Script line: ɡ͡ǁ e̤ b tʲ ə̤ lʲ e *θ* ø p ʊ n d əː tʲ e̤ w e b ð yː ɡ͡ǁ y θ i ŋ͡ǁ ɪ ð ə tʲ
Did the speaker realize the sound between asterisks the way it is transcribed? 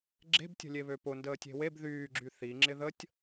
no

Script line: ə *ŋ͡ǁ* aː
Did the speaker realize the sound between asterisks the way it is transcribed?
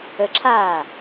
no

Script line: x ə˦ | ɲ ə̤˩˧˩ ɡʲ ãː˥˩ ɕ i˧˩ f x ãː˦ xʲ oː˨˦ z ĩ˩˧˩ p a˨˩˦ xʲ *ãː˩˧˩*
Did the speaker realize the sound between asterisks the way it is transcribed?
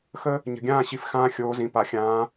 no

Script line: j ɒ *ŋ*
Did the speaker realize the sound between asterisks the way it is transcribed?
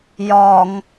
yes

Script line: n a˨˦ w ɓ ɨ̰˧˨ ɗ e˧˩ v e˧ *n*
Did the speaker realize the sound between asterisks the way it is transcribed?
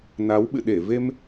no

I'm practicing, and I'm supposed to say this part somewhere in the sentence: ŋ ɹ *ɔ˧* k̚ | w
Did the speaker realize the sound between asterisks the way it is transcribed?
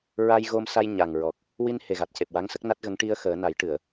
no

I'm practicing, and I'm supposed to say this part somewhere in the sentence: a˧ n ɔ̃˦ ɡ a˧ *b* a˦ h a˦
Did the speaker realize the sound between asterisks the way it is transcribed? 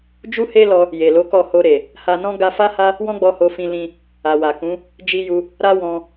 no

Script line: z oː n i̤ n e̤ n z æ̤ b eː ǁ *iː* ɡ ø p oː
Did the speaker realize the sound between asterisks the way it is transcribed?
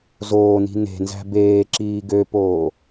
yes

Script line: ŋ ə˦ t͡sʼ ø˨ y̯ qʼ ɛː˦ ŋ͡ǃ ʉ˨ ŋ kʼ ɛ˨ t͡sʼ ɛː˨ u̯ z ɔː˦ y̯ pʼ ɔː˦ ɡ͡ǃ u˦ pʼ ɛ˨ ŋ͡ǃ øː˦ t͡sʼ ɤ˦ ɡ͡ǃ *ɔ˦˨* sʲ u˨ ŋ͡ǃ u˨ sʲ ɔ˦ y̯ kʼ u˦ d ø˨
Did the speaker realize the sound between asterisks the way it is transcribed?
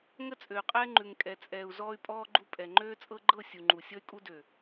no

